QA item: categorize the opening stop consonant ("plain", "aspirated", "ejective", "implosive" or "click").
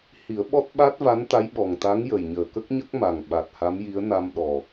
implosive